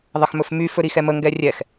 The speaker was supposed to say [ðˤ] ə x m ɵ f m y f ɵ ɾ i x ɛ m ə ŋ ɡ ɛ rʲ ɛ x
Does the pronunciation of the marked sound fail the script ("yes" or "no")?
no